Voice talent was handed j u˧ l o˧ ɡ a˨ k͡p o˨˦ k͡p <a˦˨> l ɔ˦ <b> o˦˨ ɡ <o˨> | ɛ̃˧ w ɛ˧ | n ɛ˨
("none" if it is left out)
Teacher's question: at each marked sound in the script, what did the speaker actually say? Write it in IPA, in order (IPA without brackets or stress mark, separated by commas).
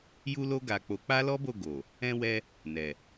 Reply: a˦, b, o˨